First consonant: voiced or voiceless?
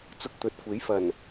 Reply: voiceless